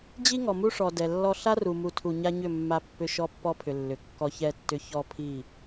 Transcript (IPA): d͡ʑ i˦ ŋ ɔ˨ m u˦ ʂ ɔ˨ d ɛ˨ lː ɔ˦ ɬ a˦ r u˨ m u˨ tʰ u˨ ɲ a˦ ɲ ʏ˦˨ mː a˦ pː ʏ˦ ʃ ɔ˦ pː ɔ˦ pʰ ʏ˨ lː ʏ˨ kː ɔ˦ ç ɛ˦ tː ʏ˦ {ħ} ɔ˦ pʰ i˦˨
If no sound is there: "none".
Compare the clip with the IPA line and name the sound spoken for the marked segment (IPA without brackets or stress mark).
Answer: ç